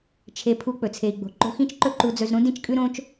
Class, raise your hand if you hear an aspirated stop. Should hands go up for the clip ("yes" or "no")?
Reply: yes